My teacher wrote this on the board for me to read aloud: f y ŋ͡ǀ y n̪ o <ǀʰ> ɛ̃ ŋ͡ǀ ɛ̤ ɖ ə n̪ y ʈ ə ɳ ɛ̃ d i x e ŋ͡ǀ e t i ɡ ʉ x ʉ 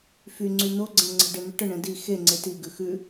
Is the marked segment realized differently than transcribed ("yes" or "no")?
yes